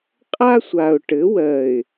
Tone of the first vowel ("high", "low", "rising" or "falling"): high